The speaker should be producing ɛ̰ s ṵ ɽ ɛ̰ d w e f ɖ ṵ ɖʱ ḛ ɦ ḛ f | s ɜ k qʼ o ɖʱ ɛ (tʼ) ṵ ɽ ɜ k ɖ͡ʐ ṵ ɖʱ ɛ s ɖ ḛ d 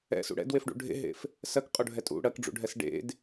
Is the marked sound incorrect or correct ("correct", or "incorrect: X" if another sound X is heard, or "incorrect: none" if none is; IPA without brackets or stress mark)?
correct